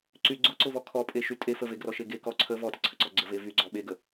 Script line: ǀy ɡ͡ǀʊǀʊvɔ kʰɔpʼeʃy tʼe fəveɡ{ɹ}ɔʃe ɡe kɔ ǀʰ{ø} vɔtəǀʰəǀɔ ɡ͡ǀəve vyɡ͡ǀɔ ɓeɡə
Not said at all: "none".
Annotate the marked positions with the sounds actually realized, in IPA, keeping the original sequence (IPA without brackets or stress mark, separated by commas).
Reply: r, ə